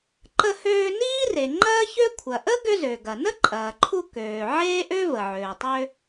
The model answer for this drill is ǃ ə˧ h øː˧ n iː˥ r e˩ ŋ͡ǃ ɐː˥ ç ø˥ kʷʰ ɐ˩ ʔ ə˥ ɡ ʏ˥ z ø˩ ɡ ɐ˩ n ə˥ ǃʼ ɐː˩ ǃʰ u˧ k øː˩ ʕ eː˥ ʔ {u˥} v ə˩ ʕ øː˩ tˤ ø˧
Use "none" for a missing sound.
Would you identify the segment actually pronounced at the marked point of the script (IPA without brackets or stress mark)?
ø˥